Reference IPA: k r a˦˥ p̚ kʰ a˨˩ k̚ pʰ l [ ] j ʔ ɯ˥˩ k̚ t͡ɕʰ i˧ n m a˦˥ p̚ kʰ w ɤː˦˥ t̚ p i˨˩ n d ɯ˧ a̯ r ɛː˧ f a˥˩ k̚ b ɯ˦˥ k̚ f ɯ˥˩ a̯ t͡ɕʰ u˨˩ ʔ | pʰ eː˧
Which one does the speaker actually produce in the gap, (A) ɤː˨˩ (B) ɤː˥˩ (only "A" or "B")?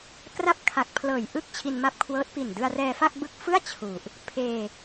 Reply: A